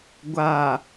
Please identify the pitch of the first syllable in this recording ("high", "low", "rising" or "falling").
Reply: low